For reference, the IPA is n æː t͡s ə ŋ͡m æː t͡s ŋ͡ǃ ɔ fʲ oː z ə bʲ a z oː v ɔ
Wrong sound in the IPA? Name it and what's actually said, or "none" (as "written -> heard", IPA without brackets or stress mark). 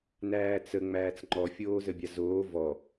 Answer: none